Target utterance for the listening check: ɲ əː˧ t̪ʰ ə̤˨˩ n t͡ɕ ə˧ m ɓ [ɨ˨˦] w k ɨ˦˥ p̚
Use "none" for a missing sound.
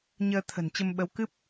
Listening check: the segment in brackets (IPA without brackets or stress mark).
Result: ə˨˦